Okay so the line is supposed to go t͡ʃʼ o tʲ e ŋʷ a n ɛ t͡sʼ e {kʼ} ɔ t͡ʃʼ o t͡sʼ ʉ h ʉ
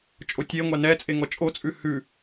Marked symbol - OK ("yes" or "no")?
no